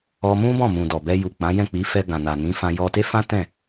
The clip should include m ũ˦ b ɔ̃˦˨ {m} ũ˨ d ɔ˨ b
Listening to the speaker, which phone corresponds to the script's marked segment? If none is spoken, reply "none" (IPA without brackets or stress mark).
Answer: m